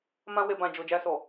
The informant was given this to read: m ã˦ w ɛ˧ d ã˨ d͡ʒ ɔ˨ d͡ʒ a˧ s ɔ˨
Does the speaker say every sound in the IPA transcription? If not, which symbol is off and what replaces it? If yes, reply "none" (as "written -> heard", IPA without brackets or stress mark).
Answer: d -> b